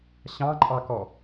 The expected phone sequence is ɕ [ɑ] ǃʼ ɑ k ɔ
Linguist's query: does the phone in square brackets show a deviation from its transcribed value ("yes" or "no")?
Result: yes